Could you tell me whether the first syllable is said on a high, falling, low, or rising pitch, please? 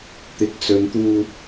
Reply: rising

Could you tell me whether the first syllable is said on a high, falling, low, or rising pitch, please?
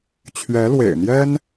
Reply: rising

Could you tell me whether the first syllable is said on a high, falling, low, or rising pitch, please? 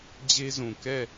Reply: high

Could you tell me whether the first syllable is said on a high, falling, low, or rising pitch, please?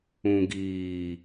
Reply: low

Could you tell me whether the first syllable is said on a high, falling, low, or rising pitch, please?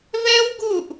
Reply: high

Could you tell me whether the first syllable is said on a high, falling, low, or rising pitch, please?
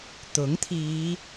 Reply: rising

